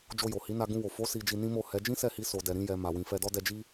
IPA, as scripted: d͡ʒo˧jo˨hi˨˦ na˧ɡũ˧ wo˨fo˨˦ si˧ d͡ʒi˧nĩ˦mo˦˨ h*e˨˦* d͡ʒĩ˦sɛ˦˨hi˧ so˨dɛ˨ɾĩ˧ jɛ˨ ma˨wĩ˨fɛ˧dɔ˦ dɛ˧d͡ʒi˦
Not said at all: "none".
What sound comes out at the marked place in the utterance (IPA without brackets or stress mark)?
ɛ˨˦